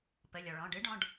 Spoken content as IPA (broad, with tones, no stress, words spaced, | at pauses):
pə˩˧˩lʲɔ˩ ɭɔ̃˩˧˩ɖɨ˦˥ɖɔ̃˩˧˩ɖ